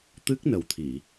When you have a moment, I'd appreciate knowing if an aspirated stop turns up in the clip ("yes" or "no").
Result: yes